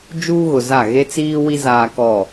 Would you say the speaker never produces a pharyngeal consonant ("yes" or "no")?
yes